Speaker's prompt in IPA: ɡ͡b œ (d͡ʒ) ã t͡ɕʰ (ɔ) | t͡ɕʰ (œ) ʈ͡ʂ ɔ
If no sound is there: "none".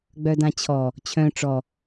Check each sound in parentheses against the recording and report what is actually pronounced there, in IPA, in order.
d, ɔ, œ̃

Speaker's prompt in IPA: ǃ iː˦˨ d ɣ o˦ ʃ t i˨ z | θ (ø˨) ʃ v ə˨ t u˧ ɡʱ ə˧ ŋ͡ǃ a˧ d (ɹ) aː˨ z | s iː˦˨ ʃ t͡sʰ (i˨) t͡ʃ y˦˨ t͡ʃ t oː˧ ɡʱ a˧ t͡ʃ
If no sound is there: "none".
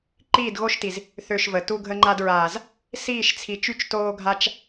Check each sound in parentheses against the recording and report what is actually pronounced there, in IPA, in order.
ø˨, ɹ, i˨

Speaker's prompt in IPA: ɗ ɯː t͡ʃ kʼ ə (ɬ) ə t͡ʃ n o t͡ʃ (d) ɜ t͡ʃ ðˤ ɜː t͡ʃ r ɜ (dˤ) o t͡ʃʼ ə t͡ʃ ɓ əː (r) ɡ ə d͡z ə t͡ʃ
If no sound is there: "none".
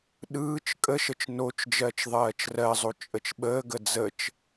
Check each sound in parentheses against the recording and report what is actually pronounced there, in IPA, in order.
ʃ, d͡ʒ, zˤ, none

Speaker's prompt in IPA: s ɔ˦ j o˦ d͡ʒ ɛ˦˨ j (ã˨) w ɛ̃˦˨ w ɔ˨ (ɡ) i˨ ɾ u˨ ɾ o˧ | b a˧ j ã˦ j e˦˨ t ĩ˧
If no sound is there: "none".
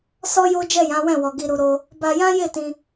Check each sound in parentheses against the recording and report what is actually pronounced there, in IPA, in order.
ã˨˦, ɡ

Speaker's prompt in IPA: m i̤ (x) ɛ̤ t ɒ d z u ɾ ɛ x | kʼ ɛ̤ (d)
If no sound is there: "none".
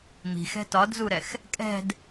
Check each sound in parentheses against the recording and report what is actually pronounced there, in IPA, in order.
x, d

